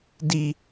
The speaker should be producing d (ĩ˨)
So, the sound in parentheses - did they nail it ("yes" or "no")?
no